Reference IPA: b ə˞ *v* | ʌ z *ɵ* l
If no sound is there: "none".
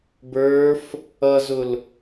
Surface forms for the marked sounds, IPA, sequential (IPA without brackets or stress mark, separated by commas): f, ʊ